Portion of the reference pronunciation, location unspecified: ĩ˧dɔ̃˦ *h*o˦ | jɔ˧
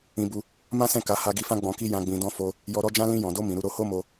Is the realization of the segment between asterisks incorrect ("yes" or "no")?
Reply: yes